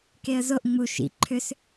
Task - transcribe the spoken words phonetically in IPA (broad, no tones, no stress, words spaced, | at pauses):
keə̯zoʔ ŋ͡mu ʃḭ ǃʰʏs